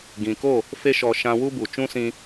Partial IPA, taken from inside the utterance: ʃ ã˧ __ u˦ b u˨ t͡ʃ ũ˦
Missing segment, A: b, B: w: B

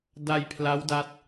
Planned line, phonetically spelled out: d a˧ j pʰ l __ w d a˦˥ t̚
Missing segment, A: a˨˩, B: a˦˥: B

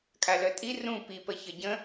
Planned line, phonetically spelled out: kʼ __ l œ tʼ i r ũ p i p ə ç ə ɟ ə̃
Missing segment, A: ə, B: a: B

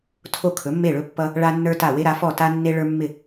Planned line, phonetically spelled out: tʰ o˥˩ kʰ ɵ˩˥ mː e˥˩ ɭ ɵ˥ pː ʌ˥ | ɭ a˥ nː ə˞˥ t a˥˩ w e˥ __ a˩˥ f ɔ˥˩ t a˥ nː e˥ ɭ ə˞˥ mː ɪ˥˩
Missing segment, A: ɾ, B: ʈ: A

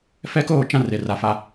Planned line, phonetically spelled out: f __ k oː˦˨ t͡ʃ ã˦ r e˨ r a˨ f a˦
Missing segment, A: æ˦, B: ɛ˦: B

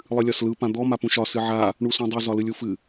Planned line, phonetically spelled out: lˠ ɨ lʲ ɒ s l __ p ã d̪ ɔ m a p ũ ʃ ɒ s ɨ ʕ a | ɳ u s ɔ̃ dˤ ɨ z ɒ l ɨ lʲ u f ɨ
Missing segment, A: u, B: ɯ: B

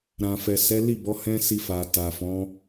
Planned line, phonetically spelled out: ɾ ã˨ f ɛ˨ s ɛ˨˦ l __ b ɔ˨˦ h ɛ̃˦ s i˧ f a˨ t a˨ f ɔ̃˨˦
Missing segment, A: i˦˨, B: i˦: A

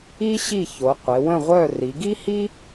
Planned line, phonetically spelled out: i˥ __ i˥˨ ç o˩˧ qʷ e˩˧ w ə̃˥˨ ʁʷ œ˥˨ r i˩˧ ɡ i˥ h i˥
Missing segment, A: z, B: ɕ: B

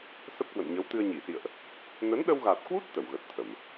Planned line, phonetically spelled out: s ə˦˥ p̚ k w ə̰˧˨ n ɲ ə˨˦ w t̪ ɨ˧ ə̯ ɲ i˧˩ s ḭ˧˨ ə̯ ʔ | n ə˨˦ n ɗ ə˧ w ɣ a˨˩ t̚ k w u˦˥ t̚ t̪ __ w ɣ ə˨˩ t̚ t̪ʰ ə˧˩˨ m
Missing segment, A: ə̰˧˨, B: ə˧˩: B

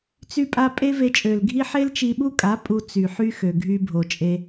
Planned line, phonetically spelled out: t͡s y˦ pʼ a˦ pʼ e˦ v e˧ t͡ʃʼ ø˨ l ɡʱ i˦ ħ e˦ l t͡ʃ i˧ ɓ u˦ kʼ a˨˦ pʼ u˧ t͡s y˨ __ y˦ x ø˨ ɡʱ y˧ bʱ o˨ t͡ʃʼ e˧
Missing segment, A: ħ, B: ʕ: A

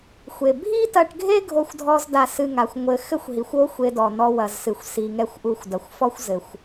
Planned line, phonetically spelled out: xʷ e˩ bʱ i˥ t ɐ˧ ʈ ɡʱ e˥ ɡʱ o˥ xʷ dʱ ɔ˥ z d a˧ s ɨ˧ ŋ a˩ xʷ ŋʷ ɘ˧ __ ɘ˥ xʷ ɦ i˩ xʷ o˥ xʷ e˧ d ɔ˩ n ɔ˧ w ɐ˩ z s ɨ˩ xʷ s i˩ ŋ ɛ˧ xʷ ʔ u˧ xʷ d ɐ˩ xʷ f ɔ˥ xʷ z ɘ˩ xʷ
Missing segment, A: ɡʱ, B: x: B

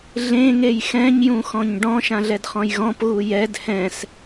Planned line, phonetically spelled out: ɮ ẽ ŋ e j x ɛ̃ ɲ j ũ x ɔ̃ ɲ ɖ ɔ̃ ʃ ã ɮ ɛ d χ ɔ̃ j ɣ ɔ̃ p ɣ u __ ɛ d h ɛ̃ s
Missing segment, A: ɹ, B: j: B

